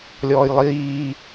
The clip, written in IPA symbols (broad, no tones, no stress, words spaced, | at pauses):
lʲɔːjlˠiː